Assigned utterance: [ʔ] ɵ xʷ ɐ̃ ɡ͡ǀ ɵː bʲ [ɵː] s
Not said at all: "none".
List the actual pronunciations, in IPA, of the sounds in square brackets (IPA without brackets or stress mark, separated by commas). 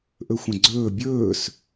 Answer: ʔ, ɵː